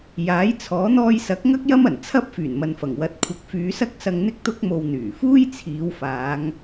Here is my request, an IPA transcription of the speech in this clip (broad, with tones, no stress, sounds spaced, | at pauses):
j aː˨˥ j t͡sʰ ɔː˨˥ n̪ ɔː˧ j s ɐ˨˥ k̚ ŋ ɐ˥ k̚ j ɐ˥ m ɐ˨˩ n t͡sʰ ɐ˥ p̚ f yː˨˩ n m ɐ˨ n f ɐ˨˩ ŋ w ɐ˨˥ t̚ kʷʰ ɐ˨˥ k̚ f yː˨˧ s ɐ˥ k̚ s ɐ˧ ŋ n̪ ɪ˥ k̚ t̪ ʊ˥ k̚ m o˧ w n̪ yː˨˩ f uː˥ j t͡sʰ iː˨˧ w f aː˨˧ ŋ